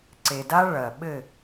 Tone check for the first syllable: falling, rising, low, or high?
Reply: low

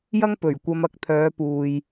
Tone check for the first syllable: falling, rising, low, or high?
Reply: high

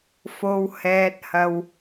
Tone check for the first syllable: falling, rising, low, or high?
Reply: low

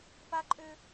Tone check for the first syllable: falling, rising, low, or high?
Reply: high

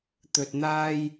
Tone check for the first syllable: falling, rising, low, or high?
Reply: low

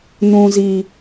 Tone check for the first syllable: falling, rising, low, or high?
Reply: low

